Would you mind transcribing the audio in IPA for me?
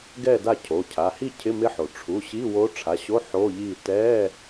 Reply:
ɡ ɛ˥˨ d a˥˨ cʰ o˩˧˩ cʰ a˩˧˩ h i˥˨ cʰ ɪ˧˥˧ m ɪ˧˥ ħ o˩ ʈ͡ʂʰ u˩˧˩ ɕ i˧˥˧ w o˧˥ ʈ͡ʂʰ a˩˧˩ ɕ o˧˥˧ ħ o˧˥˧ ʎ i˥˨ t ɛ˧˥˧

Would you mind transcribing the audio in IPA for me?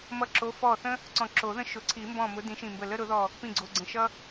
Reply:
m ʌ˧˩ ǁ o˨˦ f ɔ˧˩ θ ə̃˦ | ǀ ɔ̃˧˩ ǁ o˨˩˦ ð ə̃˦ ʃ ʊ˩˧˩ ǀʰ i˨˩˦ m b ɔ̃˧˩ m ʊ˨˦ d ĩ˨˦ ʃ ĩ˧˩ m b ə˧˩ l ə˦ ɾ ʊ˨˩˦ ð ɔ˧˩ | p ĩ˧˩ ɡ͡ǀ o˩˧˩ ɡ͡ǀ ə̃˩˧˩ ʃ ʌ˦

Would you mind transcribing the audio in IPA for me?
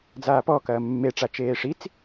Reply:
d͡z aː p ɔ k ɐː mː e ʈ͡ʂ a t͡ʃ eː ʂ i t͡s

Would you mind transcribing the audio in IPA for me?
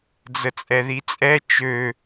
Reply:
d͡z ə t͡sʼ ɛ ð i t͡sʼ ɛ t͡ʃ ø

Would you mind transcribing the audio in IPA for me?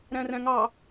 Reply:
ɾ æ̃ r æ̃ ŋ ɑ

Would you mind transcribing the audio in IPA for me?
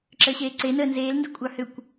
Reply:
ǁ əː ɕ eː ǀ e n əː n z eː l n d ɨ kʷʼ ɑ h ʏ kʷ

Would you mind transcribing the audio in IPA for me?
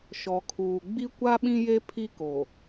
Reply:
ʃ ɔ˨ kʰ uː˨ ɡ͡b i˦ kʷ a˦ ɓ ĩ˦ j e˦ pʰ i˦ k o˨

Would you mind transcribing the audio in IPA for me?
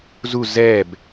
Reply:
z u z ɛ b

